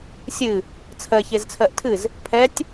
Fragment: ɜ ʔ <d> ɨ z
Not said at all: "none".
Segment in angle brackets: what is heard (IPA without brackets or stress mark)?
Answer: tʰ